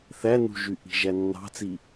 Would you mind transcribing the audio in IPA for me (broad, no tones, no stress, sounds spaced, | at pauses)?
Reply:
θ æ n ṳ ʒ y ʔ i̤ ʒ æ nː ɑ̤ t͡s i